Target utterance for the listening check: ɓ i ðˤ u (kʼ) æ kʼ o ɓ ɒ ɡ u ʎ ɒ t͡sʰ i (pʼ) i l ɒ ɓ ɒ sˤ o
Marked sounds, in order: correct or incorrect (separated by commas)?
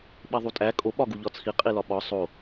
incorrect, incorrect